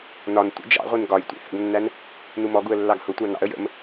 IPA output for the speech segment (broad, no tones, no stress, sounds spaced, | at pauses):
n ɒ n tʷ ə̰ d͡ʒ ɑ̰ ʁʷ i n ɡ ɒ j tʷ ḭ h ə̰ ɡ nː æ n | n u m ɔ ɡ u ə̯ lː ɑ ɡ h ʊ tʷ ɑ n ɑ̰ ə̯ j ə̰ m